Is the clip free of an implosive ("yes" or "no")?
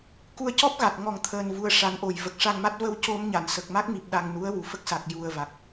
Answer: no